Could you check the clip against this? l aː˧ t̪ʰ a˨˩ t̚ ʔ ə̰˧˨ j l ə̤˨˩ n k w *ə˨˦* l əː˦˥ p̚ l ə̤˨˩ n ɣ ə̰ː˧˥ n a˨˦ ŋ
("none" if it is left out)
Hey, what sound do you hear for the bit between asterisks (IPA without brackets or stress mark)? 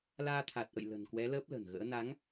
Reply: ɛ˨˦